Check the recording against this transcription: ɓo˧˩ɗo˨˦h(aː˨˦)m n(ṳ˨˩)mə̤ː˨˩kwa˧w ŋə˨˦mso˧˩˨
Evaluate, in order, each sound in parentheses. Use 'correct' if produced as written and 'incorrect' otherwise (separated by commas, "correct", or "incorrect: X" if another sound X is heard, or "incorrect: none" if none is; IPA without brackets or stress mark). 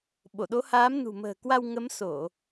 correct, correct